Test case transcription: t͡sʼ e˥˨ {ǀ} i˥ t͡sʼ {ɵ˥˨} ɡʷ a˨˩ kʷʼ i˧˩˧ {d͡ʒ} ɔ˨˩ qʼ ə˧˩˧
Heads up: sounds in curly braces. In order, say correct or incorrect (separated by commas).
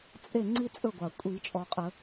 incorrect, correct, incorrect